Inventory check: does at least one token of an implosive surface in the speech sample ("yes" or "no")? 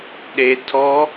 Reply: yes